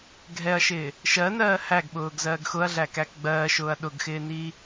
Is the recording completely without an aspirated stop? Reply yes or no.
yes